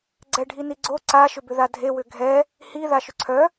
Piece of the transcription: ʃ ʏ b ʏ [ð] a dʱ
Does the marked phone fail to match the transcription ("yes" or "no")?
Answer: no